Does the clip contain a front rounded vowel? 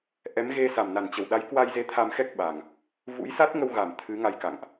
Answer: no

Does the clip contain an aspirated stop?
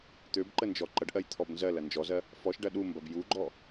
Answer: yes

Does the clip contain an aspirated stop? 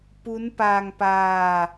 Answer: no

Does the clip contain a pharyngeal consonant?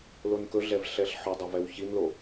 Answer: yes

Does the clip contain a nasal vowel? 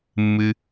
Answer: no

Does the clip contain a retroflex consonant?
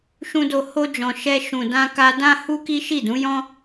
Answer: no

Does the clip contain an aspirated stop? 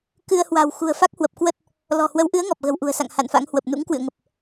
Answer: no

